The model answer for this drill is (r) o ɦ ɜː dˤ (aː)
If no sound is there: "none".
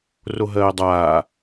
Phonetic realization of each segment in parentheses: r, aː

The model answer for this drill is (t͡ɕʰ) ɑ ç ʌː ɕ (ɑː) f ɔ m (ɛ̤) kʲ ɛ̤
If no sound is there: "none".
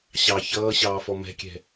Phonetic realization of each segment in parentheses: ɕ, ɑː, ɛ̤

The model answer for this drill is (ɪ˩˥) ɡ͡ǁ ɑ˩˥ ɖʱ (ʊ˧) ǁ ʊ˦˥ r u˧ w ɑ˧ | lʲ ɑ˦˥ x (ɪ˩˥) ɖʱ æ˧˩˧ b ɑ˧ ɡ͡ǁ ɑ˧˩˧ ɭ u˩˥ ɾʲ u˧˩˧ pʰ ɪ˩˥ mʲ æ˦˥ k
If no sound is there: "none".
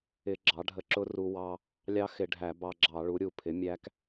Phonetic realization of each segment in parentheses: ɪ˧˩˧, ə˧, ɪ˧˩˧

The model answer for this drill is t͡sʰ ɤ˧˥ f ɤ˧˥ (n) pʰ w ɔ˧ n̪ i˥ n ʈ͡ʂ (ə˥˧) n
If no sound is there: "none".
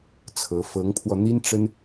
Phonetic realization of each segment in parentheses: ŋ, ə˥

